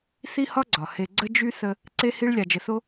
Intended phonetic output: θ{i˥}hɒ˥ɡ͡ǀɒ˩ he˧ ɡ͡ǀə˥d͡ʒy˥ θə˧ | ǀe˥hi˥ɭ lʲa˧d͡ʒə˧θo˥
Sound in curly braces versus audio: correct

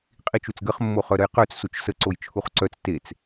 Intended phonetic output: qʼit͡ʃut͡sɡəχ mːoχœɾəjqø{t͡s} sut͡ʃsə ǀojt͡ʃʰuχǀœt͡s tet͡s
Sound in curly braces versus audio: correct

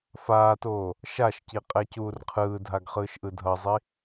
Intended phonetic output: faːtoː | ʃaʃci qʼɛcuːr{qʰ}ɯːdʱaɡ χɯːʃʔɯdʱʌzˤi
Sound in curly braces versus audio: correct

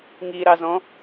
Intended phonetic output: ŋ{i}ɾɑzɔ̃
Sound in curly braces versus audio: correct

